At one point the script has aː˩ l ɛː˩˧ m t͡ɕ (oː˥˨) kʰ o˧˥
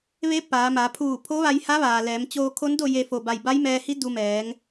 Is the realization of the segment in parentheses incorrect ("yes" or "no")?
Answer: yes